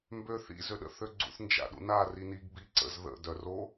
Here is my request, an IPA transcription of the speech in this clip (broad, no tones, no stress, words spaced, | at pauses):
mbøθḭ zøɗə̰θøɡ͡ǀṵθ nd͡ʒa̰ɗṵna riniɡ biǀə̰z ðə̰ dœro